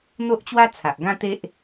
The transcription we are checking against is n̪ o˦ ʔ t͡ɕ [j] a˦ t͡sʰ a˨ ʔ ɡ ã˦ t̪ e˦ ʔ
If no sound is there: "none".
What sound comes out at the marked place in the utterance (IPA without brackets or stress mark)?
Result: w